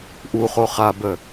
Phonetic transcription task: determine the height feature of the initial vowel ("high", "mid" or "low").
high